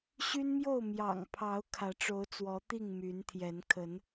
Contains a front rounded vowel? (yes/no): yes